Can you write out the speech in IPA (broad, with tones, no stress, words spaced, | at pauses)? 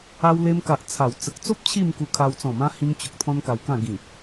a˧wle˧mka˨ʔ t͡sʰa˨˩w t͡sə˨k̚t͡so˦p̚ t͡ɕʰi˥˧mku˧ kʰa˧w t͡sɔ̃˨˩mã˧ hĩ˧ŋt͡ɕo˨k̚ t̪ʰɔ̃˦nka˧wkã˥˧ ɡĩ˨˩